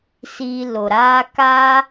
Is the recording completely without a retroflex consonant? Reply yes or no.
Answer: yes